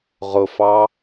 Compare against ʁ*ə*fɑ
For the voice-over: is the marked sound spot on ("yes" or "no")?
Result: no